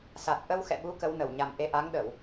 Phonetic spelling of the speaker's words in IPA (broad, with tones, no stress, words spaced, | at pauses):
sa˨˩t̚ʔə˧wxɛ̰˧˨ɓu˨˦ kə˨˦wnə˧˩wɲa˨˩mʔe˧ ʔa˨˦ŋɗə˧˩˨w